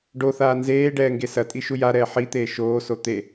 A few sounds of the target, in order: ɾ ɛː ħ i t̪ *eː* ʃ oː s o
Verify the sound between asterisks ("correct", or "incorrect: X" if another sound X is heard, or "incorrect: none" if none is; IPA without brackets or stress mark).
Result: correct